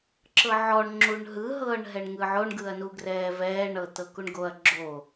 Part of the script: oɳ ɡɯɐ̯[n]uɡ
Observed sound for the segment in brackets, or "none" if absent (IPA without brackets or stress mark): n